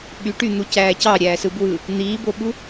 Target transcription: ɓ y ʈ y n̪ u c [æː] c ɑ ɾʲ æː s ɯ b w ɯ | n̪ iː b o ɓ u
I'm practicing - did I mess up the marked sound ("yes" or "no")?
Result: no